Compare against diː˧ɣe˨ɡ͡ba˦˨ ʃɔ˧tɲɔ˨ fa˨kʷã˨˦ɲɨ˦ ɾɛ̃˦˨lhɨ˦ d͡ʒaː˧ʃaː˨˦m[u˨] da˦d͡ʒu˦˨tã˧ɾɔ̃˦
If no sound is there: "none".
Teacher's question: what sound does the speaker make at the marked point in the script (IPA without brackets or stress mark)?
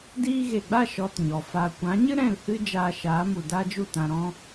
u˨